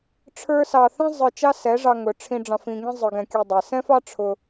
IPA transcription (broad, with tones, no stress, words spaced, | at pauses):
ʈ͡ʂʰə˞˦sɑ˧ θɛ̃˦zˤə˞˧ t͡ʃɑ˦sɛ˨˦ʐɑ˧ ŋʊ˨ ʈ͡ʂʰĩ˧ɖ͡ʐɑ̃˧f ĩ˧ŋĩ˦zˤə˞˧ ɡɛ̃˧kʲʊ˧dˤɛ˨ sɛ̃˦fɑ˦ʈ͡ʂʰʊ˧